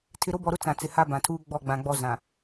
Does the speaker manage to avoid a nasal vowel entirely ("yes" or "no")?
no